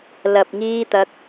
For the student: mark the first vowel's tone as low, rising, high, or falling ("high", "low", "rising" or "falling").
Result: low